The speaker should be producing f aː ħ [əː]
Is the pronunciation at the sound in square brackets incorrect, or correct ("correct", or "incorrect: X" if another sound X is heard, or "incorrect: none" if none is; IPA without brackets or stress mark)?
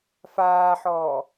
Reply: incorrect: ɔː